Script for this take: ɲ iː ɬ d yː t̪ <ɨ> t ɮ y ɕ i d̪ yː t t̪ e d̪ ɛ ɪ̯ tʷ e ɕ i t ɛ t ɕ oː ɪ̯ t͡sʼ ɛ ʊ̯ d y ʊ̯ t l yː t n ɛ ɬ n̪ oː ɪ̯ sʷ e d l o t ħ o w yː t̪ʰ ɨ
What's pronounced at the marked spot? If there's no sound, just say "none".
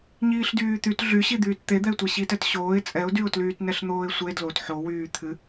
y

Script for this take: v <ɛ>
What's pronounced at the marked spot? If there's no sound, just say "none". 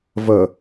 ə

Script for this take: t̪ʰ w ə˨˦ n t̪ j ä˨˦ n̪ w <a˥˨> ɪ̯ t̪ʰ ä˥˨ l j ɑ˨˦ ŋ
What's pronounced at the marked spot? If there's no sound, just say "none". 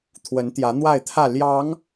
a˥˨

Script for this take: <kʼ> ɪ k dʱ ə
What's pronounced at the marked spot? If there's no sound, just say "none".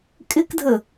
kʼ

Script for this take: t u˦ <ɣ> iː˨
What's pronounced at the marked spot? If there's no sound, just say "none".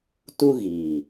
ɣ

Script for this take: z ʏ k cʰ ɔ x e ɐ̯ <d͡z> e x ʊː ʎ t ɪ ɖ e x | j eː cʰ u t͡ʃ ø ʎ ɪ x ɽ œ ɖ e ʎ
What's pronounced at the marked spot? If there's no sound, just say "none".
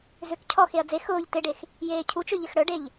d͡z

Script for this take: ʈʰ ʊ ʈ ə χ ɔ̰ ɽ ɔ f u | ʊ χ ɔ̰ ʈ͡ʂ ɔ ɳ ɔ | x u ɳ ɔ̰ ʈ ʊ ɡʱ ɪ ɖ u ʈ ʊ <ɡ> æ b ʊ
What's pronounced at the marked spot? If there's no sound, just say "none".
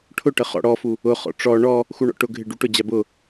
d͡ʑ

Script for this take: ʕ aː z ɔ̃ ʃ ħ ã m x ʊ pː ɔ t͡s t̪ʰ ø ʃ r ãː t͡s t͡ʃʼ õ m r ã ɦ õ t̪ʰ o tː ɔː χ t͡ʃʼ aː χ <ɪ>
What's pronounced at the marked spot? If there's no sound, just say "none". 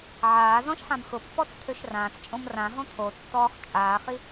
i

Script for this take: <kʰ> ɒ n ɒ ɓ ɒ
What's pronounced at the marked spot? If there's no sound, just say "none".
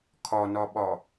kʰ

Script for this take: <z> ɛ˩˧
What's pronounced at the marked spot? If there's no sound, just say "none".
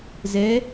z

